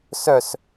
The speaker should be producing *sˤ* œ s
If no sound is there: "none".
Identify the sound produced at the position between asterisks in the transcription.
s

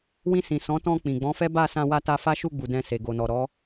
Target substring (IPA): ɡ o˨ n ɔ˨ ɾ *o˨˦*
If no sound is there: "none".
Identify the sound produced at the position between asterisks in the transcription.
ɔ˨˦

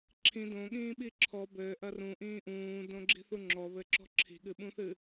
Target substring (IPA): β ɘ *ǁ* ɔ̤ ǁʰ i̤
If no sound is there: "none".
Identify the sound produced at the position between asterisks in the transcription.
ǁ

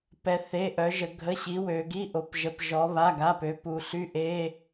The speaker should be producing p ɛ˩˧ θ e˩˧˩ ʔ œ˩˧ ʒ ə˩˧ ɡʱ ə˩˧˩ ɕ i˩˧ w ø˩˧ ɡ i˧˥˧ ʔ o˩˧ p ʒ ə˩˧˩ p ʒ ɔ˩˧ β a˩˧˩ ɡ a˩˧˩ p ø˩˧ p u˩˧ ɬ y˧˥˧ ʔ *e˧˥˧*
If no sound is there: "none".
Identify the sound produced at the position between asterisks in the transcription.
e˧˥˧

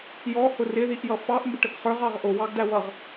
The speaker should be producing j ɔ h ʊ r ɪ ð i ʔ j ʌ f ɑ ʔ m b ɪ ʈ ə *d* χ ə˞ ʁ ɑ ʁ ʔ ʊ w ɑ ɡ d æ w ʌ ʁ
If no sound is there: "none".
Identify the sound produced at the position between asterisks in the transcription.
ɡ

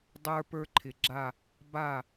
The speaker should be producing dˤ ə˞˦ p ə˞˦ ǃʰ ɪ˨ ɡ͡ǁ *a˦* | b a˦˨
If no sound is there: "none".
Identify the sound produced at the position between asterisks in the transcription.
a˦˨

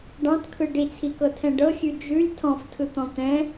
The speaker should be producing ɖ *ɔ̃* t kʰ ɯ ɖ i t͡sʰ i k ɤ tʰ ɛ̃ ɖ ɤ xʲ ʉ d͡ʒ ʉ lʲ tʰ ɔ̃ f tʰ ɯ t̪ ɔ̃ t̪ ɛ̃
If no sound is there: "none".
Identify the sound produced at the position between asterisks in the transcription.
ɑ̃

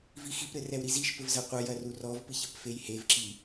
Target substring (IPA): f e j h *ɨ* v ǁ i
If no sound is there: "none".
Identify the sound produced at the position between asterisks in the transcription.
e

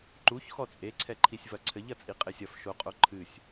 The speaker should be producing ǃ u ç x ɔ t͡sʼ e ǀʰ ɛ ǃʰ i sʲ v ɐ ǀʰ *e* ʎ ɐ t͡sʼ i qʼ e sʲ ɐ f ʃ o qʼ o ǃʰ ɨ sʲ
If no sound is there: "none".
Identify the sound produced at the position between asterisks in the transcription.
ɘ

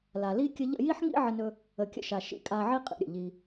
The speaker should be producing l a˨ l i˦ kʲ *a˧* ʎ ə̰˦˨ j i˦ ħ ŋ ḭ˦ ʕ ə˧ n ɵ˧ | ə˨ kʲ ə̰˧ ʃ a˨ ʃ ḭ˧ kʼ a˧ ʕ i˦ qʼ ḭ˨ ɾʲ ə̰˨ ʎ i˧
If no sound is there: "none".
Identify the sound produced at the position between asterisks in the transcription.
ə˧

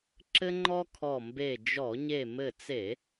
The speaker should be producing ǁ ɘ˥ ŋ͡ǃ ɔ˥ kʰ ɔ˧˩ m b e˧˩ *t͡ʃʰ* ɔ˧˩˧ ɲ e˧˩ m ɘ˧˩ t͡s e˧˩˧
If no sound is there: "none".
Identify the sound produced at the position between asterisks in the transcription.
d͡ʒ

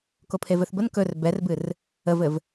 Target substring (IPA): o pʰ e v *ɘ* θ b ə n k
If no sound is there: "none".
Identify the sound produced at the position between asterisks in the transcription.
ɘ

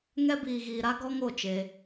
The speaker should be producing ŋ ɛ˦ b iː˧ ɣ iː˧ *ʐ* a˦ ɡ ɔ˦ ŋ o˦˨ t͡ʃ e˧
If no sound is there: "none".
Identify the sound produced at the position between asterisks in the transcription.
ɾ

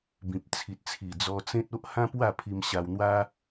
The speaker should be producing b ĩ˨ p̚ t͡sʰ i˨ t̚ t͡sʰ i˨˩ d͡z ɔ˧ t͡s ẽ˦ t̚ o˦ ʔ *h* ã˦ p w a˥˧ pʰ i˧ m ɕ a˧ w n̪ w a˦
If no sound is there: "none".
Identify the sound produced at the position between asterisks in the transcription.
h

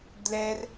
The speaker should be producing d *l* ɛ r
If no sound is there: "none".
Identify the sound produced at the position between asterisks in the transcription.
l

